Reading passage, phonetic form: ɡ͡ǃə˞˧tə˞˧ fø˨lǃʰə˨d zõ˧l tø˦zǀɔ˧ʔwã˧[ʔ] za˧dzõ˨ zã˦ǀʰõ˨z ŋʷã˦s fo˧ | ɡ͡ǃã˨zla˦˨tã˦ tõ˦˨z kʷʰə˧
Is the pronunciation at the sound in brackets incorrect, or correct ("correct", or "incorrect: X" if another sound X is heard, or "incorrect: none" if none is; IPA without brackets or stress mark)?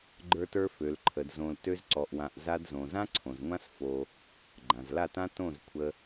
correct